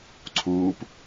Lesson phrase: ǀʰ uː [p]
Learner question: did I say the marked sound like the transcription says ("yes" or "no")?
yes